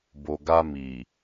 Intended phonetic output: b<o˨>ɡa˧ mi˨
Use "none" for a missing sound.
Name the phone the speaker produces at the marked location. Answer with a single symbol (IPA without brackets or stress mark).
o˨